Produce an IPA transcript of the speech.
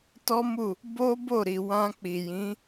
t ɔ˦ m u˦˨ | b o˦ b o˦˨ ɾ i˨ w ã˧ k͡p i˨ j ĩ˨˦

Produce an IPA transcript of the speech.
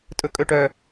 tʼ ɵ kʼ ɵ ʈ œ

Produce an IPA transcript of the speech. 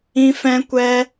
ĩ˦ f ɛ̃˦ kʷ ɛ˦

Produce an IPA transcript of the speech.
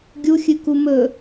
ɡʲ u xʲ ɨ k u m ɵ

